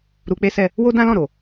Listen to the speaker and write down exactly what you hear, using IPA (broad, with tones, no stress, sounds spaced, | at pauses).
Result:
ɾ u˧ k͡p e˦ s ɛ˦˨ | w o˦ d ã˦ l ɔ̃˦˨ ɾ o˨